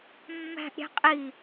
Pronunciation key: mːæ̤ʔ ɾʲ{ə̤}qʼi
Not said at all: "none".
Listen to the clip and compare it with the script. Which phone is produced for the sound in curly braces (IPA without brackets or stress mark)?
æ̤